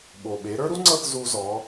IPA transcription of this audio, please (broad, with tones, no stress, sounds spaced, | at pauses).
ɓ o˩ ɓ e˩˧ ɾ ə˞˥ ɾ u˥ ŋ͡ǀ ɤ˥ θ z u˧ z ɔ˩˧